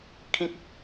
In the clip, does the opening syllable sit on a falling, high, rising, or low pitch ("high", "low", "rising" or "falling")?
high